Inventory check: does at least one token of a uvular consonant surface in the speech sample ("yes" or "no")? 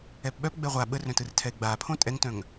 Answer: yes